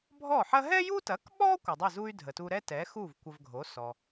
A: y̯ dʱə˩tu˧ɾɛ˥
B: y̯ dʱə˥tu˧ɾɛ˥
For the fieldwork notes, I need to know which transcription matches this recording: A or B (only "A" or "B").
A